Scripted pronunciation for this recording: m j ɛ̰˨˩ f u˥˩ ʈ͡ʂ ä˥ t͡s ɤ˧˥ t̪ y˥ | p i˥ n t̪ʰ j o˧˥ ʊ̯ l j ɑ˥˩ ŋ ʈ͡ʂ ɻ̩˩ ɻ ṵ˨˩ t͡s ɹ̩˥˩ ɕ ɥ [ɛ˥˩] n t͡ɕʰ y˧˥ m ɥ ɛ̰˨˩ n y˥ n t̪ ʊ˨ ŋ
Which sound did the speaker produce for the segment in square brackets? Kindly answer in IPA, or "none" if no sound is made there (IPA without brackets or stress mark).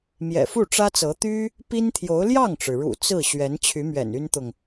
ɛ˧˥